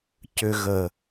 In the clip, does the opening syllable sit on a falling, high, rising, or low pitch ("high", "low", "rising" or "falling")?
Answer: low